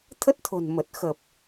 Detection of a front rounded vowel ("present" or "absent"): absent